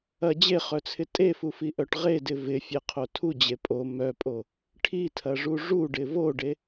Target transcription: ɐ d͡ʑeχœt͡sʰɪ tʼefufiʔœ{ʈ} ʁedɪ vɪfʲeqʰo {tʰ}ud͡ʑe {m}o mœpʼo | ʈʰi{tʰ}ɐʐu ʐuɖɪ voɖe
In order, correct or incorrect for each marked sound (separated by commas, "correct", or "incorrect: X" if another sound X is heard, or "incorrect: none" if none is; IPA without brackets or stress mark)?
correct, correct, incorrect: pʼ, correct